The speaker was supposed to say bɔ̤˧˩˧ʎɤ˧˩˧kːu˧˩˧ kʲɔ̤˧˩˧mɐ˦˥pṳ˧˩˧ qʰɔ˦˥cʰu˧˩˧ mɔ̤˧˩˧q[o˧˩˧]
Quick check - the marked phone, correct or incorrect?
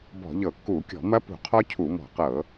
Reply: incorrect